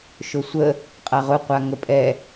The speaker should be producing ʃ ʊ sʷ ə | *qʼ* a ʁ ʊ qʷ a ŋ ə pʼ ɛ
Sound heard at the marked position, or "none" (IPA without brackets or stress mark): qʼ